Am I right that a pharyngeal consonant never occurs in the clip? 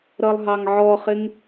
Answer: no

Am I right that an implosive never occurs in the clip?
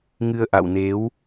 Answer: yes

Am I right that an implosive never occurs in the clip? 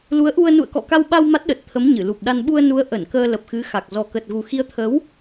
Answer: no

